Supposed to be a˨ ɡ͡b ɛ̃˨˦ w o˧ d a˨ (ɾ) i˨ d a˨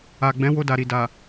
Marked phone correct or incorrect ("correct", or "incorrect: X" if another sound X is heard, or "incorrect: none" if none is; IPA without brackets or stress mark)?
correct